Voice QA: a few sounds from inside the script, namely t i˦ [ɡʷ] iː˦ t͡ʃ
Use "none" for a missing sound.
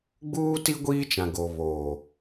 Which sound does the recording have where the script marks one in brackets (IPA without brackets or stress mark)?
ɡʷ